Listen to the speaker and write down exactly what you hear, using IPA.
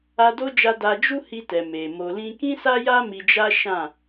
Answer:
a˧ d o˦ d͡ʒ a˧ d a˧ d͡ʒ u˦ h i˧ t ɛ˨ m e˨ m o˨ l ĩ˧ k ĩ˦ s a˦ j a˦ m i˧ d͡ʒ a˦ ʃ ã˦˨

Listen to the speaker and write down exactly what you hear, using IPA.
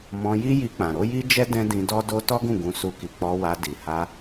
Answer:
m ɔ̃˧ j i˦ j i˧ k͡p ã˨ ɾ o˨˦ j i˦ d͡ʒ ɛ˦ d ɛ̃˦ d ĩ˧ d ɔ˦ d o˦ t ɔ˦ ɡ ũ˦˨ ɡ ũ˧ s u˧ k i˨ k͡p ɔ˧ w a˧ d i˨ h a˧

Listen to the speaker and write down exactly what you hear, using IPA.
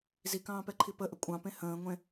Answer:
z i k ɑ̃ː p ɛ ǃʰ i p ə ʔ ə kʷʼ ɑ̃ p ẽ h ə̃ː ŋʷ ẽ

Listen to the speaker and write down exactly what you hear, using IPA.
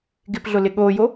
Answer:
ɡ ɪ p ɮ ʊ l ɪ ɠ oː j o

